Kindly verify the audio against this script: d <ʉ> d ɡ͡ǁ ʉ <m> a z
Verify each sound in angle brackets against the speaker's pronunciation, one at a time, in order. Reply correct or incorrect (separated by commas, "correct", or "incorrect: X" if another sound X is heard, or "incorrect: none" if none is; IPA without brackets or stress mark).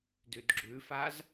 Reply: correct, incorrect: f